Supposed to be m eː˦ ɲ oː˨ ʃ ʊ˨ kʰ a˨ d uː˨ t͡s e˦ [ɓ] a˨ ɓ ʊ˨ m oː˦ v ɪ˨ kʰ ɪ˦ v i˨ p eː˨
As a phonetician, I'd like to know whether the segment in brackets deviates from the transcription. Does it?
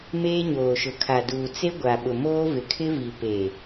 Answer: yes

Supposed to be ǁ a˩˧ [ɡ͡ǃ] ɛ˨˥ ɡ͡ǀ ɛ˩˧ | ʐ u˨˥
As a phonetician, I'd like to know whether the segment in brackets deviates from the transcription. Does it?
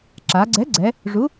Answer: yes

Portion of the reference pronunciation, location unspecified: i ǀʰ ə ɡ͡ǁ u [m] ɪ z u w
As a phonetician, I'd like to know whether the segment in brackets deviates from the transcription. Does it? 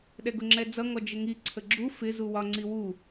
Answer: yes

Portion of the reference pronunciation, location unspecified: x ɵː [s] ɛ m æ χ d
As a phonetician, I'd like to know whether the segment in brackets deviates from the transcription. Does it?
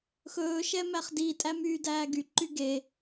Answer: yes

